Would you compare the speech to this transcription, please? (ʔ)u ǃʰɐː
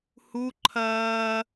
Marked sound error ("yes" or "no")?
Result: yes